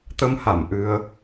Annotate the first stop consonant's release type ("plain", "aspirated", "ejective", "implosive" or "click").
plain